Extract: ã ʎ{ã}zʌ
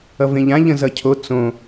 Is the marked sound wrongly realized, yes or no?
yes